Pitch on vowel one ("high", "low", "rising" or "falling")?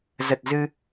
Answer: low